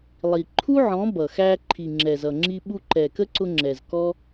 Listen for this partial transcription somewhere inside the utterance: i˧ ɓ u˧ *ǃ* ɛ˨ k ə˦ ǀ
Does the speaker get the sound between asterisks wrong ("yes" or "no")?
no